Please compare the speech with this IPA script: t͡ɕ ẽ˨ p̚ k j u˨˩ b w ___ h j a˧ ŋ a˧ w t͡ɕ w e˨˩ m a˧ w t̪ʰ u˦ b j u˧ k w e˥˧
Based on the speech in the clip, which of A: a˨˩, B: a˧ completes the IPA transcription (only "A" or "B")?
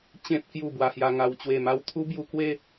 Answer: B